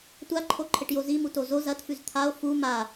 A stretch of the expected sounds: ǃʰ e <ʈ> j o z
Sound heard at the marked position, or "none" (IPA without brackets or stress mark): ʈ